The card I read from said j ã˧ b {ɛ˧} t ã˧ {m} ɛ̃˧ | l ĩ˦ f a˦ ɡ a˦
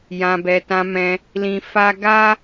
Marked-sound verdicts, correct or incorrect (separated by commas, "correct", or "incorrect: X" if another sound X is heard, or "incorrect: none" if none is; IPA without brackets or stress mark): correct, correct